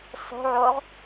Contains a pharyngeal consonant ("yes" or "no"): yes